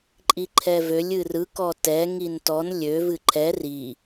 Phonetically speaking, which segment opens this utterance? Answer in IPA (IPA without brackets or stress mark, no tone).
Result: ǃʼ